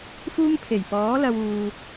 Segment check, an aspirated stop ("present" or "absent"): present